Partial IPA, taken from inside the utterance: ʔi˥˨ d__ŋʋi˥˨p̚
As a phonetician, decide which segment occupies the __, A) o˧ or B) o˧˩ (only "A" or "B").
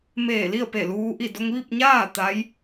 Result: A